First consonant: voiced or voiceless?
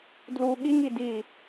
voiced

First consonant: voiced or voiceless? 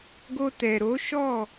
voiced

